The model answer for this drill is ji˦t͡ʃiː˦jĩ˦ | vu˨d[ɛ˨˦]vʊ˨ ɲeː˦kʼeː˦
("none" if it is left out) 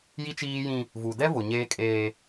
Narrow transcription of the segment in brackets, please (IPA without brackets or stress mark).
ɛ˦